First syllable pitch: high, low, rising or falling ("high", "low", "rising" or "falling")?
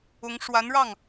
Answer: rising